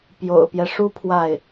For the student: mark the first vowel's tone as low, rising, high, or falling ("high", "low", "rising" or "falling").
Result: low